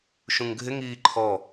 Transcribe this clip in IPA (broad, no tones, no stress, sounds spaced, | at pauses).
ʃ ũ ŋ ɡʱ ɪ ŋ iː ǃʰ ɔ